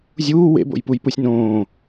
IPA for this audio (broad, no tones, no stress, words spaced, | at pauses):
zʲuː wḛbo̰jpujpusʲ nõː